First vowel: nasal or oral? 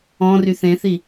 nasal